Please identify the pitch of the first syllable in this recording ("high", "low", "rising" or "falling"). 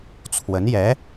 rising